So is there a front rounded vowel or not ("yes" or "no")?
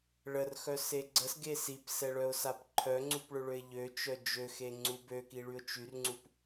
yes